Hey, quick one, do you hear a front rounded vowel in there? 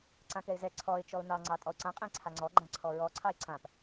no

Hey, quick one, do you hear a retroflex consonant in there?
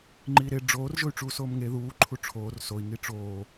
yes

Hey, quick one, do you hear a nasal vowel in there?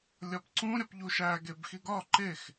yes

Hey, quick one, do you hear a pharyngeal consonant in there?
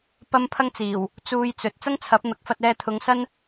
no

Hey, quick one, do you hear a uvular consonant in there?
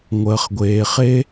yes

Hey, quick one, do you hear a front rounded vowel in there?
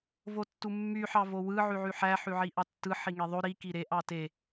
yes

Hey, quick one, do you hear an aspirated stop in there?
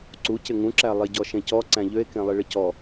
no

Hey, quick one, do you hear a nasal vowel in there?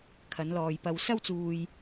no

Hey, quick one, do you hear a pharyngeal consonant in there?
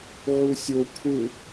yes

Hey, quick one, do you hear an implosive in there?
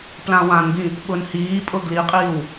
yes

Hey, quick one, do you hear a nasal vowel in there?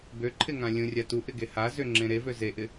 yes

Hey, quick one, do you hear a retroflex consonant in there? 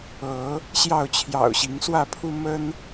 no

